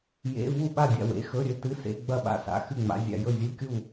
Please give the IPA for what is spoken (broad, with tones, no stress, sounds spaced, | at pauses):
j ḛ˧˥˧ v u˥˨ ɓ a˥˨ dʲ a̰˥˨ w ḛ˧˥˧ x ɵ˧˥˧ ɾʲ ɵ˧˥˧ t ɨ˧˥˧ s ḛ˧˥˧ ɡ͡b ɐ˥˨ ɓ a̰˥˨ s a̰˧˥˧ x ɨ˥˨ ŋ͡m a̰˧˥˧ zʲ a̰˥˨ j ɵ˥˨ zʲ u˧˥˧ kʲ u˥˨